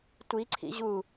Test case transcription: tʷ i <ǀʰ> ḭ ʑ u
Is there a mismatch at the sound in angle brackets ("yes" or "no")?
no